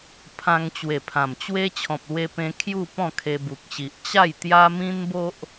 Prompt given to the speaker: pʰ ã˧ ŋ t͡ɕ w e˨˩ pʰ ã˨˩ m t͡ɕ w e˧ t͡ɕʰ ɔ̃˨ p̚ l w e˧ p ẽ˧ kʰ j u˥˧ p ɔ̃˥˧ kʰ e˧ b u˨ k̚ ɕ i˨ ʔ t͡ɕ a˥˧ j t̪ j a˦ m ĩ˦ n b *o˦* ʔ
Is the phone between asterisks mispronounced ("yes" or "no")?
no